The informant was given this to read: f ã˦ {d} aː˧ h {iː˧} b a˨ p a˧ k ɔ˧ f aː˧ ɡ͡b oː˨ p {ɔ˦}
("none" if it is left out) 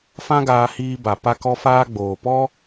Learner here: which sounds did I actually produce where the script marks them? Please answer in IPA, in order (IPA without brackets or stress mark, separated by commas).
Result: ɡ, iː˧, ɔ˦